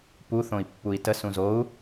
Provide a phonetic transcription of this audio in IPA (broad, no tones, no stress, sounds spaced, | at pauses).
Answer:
p u θ õ i̯ pː u i̯ t ə s ũ z o u̯